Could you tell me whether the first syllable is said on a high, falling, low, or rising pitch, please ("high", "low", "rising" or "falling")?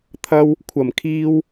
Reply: high